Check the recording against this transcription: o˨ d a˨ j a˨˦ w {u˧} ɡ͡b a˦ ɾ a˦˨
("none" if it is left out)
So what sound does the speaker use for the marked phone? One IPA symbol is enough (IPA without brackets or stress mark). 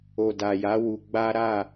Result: u˧